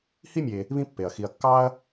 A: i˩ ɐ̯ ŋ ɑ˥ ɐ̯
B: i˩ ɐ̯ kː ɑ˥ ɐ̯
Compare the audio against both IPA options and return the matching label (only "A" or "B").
B